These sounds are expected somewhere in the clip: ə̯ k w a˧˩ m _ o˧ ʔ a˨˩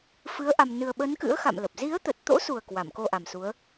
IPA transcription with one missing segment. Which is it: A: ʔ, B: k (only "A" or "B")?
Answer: B